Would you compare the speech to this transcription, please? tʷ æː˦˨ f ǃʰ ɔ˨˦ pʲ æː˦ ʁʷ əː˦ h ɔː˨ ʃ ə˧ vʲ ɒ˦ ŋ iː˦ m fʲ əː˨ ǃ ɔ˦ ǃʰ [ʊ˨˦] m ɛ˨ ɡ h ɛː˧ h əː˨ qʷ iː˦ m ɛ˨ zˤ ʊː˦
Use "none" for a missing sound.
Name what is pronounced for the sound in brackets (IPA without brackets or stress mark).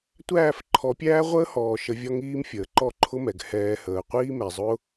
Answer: ʊ˦